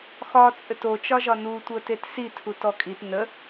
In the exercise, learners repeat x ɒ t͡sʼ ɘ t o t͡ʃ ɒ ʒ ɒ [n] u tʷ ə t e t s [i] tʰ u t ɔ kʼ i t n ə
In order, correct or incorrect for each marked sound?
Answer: correct, correct

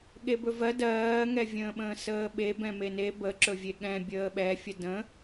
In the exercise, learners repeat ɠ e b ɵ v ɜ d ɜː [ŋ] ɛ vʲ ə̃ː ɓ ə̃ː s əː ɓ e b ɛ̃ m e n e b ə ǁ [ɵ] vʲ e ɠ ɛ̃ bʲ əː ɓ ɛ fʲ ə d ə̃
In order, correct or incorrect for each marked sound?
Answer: correct, correct

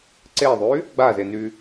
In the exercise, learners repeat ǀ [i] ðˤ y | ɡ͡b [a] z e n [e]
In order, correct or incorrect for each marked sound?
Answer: incorrect: e, correct, incorrect: y

